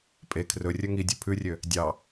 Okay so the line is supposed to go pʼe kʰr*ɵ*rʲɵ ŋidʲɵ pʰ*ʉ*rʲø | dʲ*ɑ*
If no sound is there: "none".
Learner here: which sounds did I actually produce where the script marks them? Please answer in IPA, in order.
ɵ, ʉ, ɑ

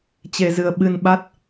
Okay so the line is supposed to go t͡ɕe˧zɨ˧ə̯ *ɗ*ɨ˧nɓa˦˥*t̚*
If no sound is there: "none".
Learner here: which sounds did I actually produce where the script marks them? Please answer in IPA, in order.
ɓ, t̚

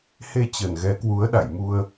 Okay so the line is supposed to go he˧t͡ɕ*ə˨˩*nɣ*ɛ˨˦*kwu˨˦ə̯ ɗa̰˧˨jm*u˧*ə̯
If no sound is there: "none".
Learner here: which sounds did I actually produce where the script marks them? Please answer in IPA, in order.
ə˨˩, ɛ˨˦, u˧

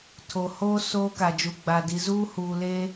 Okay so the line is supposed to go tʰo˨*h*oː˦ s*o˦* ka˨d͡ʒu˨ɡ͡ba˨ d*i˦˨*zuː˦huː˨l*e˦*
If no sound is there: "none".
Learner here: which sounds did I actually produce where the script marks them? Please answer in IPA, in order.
h, oː˦, i˨, e˦

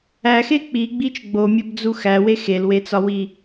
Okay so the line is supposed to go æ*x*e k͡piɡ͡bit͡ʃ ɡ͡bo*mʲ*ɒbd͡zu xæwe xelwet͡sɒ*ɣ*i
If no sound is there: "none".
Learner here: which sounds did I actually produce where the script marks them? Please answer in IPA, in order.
x, mʲ, w

